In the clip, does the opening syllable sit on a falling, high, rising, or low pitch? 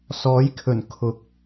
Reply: rising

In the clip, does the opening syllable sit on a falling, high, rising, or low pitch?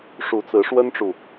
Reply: rising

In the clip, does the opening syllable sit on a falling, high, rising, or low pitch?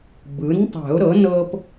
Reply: rising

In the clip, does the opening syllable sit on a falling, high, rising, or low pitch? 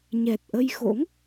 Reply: low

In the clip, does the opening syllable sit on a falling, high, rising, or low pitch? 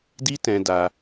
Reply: high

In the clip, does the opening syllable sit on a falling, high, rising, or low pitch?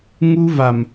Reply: high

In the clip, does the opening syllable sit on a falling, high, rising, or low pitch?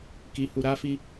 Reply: high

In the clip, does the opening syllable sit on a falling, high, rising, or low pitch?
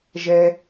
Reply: low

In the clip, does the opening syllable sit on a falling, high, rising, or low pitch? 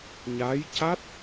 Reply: rising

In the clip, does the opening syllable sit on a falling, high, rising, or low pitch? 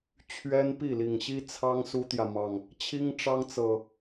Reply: high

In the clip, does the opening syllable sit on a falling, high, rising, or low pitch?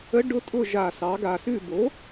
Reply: rising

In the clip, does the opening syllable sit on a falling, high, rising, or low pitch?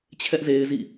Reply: high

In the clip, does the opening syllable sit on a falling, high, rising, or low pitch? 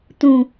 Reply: low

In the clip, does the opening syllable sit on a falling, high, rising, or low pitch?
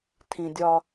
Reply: low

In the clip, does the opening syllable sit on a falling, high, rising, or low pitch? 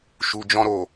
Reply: low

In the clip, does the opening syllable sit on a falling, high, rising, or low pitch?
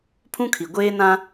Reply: high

